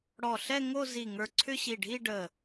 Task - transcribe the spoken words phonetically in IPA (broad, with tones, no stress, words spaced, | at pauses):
ɽɔ˧˩ɬɛ˥˧ ŋo˥˧zi˧˩ŋə˞˧˩ǀʰʏ˥˧ ɕi˧˩ɖʱi˥˧ɖə˧˩